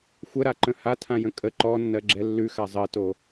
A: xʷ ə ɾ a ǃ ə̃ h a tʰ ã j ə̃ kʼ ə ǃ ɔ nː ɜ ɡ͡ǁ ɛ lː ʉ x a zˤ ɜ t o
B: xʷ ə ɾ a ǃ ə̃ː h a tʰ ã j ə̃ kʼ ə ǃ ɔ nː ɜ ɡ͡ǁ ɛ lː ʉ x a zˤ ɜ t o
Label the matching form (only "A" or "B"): A